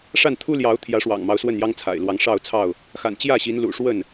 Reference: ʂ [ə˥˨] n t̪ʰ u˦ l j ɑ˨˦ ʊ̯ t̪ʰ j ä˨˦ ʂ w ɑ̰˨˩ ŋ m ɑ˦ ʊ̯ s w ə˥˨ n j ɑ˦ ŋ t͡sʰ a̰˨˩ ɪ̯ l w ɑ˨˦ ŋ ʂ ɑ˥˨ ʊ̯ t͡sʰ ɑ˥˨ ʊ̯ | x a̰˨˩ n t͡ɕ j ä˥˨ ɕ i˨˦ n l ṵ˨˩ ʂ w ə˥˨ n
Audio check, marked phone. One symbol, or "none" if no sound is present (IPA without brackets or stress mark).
a˥˨